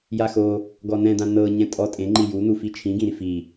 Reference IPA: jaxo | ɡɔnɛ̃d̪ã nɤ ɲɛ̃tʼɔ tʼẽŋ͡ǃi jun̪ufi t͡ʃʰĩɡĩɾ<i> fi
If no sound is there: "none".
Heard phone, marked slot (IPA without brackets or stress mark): i